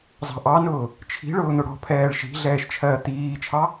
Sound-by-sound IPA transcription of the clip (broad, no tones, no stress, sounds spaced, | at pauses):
zˤ ɑ̤ ʔ ɑ n ʊː | t͡ʃʰ i̤ ɭ ʊː n̪ ʊ ɽ ɔ̤ pʰ ɛː ɭ ʃ i̤ ɮ ɛː ʃ t͡ʃʰ ɜː t̪ iː t͡ʃʰ ɑ